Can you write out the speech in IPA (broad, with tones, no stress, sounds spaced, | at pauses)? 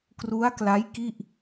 k r u˦˥ a̯ k l a˦˥ j k i˥˩ ʔ